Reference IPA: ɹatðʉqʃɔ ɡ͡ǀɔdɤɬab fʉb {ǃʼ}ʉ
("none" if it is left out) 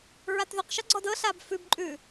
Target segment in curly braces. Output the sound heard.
ǃʼ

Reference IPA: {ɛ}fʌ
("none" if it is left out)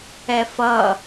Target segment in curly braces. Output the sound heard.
ɛ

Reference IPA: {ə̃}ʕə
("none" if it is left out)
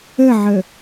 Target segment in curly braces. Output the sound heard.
ə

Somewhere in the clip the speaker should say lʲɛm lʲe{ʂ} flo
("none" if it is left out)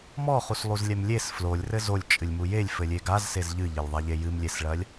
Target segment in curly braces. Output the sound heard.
s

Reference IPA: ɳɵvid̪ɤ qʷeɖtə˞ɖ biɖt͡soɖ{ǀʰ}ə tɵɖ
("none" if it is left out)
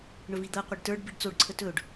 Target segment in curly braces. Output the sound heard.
ǀʰ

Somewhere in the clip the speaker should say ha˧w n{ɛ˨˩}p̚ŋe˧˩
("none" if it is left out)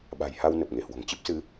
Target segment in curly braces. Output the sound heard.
ə˨˩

